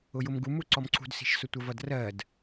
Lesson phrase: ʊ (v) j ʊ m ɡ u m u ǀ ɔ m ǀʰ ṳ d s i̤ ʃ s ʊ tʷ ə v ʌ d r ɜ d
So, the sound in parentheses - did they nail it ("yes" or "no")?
no